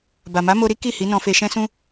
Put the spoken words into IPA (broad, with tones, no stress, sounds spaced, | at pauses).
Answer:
b a˨ m a˨˦ m o˧ ɾ i˦ k i˦˨ h i˨˦ n ɔ̃˧ f e˧ ʃ ɛ̃˦ s ũ˦